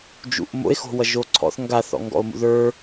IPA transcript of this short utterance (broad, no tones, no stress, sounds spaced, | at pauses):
d͡ʒ ṵ ʔ m o̰ e̯ x o̤ w ʌ ʒ o ǀʰ ɔ̰ θ ŋ ɡ a θ ɔ̰ ŋ ɡ ɔ̰ o̯ m ṵ ð ə˞